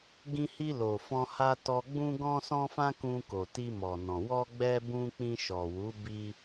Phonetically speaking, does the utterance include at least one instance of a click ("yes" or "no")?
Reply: no